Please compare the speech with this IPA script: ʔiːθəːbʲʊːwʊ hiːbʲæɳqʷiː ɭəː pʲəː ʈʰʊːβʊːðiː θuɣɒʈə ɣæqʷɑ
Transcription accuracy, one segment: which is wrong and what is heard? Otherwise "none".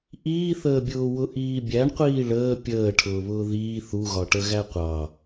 h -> ʔ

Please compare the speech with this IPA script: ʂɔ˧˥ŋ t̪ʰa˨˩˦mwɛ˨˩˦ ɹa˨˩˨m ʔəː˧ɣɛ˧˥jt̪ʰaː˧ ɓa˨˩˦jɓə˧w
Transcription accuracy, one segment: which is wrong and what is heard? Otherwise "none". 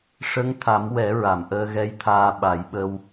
ɔ˧˥ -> ə˧˥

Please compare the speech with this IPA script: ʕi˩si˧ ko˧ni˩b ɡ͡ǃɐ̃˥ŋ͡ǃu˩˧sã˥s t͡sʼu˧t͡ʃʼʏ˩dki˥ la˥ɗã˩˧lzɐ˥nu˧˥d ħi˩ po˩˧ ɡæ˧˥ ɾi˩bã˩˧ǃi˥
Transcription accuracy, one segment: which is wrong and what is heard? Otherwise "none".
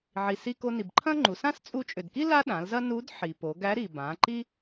ɡ͡ǃ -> ǃʰ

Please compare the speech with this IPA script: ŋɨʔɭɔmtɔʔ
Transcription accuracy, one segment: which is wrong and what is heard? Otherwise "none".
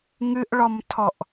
t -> tʰ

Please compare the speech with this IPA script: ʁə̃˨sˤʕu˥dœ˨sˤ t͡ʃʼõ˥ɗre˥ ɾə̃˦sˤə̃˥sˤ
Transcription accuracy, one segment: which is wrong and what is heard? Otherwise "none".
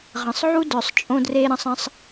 ɗ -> d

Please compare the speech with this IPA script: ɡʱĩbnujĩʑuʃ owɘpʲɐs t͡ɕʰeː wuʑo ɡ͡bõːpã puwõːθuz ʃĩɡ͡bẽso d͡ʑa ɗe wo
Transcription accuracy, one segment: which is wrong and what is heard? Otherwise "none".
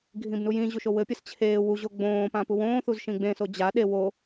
none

